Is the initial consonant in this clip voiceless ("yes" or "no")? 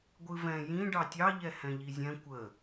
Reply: no